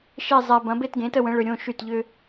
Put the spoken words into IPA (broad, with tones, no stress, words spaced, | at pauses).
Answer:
ʃe˥˧ zˤɛ˧bɐ̃˨˥ be˥˧tɡẽ˨˥tə˥˧wə̃˨˥ ɭʏ˧ɾʲõ˥˧ʃy˥˩t ʎʏ˧